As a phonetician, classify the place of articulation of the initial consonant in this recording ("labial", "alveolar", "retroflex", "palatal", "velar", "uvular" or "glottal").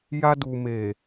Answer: palatal